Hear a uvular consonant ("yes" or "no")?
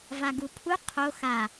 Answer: yes